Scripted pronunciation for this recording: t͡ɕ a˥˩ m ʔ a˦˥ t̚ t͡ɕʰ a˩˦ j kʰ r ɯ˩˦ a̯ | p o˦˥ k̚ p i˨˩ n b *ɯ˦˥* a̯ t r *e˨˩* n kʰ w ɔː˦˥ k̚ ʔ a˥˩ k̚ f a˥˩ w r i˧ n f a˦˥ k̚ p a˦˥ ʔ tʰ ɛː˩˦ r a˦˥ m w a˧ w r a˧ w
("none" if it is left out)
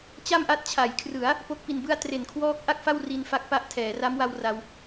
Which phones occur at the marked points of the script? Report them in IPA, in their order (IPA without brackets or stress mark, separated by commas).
ɯ˥˩, e˨˩